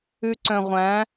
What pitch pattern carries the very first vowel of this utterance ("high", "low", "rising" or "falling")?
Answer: low